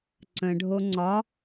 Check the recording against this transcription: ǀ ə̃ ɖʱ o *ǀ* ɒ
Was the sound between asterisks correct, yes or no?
no